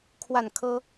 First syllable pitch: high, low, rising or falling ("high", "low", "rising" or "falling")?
falling